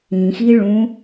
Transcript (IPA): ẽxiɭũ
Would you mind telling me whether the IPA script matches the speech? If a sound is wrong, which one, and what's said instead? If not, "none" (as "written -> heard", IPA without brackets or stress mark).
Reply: ẽ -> ĩ